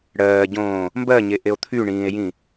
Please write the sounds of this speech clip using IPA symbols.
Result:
ɽɜːɟõː | mbɜɲeʔeo̯ t̪ʰyɳĩːe̯jĩ

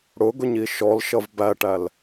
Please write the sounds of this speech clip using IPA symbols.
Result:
ɽʊɡʊɲi ʃɔlʃʌv bæʈæl

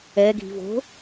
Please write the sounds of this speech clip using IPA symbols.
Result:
ɛɡʱi̤vo̤

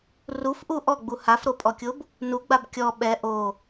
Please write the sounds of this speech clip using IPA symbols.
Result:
rufʔu ʔɔɡ͡bu hafɾopʼɔkʲob | nuɡ͡bab kʲɔ ɓɛ ʔo

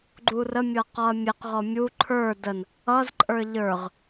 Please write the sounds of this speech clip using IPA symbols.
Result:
ɡ͡ǃurə mʲɤqɔɐ̯mʲeq ʁɔmʲu ǃʰə˞ dən | ʌz ǃʼə˞ʎə˞ʁ

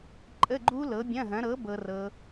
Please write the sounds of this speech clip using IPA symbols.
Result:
ǃʼə˧˥˧ɡ͡ǃu˦˥ lɤ˨˥bʲɐ̃˧˥˧ɦɐ̃˨˥ ɾɤ˨˥ bɤ˦˥rɤ˦˥

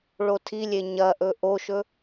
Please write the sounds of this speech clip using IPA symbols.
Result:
ɭotʰilʲe ɲɐʔɵ ʔoʃɵ

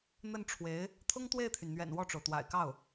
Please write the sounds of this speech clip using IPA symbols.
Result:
n̪ə˥˩nʈ͡ʂʰwe˧˥ɪ̯ | t̪ʰʊ˥ŋt̪we˥˩ɪ̯t̪ʰy˩nn̪ɥɛ̰˨˩n wɔ˥˩ʈ͡ʂo˩ʊ̯ t̪wa̰˨˩ɪ̯kɑ˥˩ʊ̯

